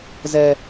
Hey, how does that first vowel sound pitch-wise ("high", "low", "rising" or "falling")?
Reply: high